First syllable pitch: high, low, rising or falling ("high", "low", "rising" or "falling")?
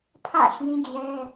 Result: falling